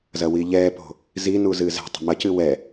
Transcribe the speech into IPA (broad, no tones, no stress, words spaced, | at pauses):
zɐwiʎɛːpo̤ | zinu zɨːzɛ̤tˤṳ mɐcɨ wɛ